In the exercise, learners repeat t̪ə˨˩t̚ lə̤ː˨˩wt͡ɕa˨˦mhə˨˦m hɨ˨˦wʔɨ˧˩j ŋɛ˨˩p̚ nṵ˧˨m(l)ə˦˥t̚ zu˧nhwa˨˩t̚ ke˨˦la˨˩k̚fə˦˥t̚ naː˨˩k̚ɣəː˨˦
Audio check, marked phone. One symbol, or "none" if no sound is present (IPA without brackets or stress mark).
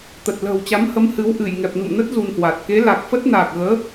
n